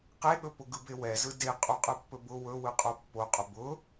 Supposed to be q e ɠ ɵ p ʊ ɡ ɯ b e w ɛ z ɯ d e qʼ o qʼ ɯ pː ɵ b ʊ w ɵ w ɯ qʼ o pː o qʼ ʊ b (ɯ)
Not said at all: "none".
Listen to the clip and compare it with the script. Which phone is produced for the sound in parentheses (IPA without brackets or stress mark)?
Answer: ʊ